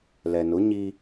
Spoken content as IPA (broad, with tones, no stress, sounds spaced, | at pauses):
l ɛ˨ n ʊ˨˦ ɲ i˦